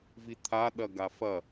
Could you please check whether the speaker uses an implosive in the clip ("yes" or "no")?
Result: yes